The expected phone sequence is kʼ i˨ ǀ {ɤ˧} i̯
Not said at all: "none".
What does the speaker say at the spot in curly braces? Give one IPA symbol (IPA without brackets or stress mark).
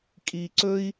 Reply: ɵ˧